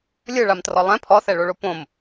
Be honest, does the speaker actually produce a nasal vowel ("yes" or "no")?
yes